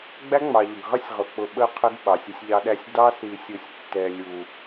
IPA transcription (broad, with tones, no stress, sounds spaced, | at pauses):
ɡ͡b æ˦ ŋ͡m ɑ˨ ʎ ʌ˨ ɡ ʁ ʌ˦ sʲ ʁ ʊ˨ k͡p ʊ˨ ɓ ə˨ qʰ ə˦ ɡ ɓ ɑ˨ sʲ ɪ˦ sʲ ʎ ɑ˦ ɗ æ˦ sʲ d ɑ˦ s i˨ sʲ u˨ sʲ tː ɛ˨ lʲ u˨